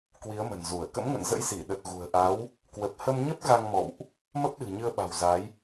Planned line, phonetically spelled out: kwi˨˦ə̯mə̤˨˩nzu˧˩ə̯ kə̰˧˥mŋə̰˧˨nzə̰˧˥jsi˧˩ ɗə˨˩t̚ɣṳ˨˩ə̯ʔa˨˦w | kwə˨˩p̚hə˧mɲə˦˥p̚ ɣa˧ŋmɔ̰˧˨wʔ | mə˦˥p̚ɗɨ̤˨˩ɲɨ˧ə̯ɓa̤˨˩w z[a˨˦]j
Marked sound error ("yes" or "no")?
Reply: no